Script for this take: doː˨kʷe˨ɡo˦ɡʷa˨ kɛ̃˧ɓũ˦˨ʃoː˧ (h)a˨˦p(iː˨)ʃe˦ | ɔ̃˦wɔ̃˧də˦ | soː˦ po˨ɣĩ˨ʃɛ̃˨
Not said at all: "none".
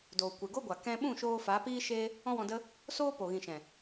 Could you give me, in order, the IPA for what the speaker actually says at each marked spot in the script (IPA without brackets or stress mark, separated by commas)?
f, iː˦